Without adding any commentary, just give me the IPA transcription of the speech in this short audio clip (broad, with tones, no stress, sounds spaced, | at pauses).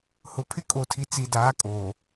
h ʊ˨ pʰ ɪ˦ kʼ o˨ tʰ i˨ t͡s i˨ d aː˨˦ kʼ oː˨